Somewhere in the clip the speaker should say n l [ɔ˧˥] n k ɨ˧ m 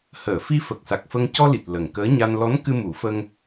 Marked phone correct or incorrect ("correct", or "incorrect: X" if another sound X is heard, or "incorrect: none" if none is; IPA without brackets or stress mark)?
correct